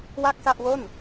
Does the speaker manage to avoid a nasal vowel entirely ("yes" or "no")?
yes